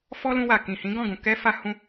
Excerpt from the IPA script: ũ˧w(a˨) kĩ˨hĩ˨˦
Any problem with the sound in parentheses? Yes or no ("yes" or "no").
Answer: no